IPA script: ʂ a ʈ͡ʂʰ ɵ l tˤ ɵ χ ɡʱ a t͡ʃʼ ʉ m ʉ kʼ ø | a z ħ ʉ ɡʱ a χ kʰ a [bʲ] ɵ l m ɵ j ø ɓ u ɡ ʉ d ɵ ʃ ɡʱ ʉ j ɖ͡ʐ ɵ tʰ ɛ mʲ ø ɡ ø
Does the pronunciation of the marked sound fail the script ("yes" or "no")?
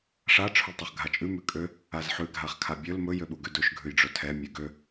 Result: no